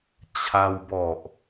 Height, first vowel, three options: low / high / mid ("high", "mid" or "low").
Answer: low